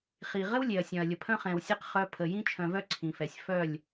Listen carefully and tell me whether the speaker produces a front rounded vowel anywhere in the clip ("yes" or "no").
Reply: yes